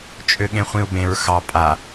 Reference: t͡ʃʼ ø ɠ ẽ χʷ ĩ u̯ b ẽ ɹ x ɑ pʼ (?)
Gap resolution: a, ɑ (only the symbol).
a